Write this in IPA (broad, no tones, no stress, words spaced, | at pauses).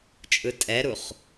t͡ʃʼɯtʼɛɾuχ